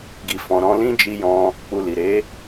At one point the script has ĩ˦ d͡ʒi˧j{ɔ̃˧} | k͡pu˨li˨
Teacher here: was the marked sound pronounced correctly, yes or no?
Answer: yes